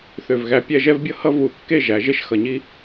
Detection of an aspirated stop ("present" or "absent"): absent